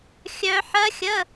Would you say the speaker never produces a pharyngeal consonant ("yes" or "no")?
no